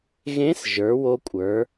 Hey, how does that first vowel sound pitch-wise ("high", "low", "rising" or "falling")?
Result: rising